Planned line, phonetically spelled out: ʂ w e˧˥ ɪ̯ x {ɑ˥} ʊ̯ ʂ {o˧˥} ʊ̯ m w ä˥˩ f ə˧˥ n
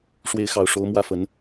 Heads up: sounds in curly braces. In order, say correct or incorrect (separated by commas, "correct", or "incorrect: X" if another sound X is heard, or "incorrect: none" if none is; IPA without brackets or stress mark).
incorrect: ɑ˨˩, correct